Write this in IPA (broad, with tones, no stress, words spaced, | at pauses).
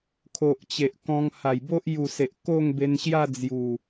kʰo˨ʔt͡ɕe˨ʔ kɔ̃˧ŋ ha˨˩jbo˦ʔ ju˨˩ se˨ʔko˥˧ŋbe˧nɕja˥˧ d͡zju˨˩